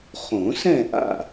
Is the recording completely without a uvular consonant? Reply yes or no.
no